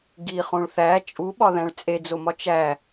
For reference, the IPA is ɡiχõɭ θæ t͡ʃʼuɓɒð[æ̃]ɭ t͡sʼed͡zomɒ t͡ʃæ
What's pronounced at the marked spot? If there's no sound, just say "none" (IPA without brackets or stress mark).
æ̃